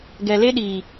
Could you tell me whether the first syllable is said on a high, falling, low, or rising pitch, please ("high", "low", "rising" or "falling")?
low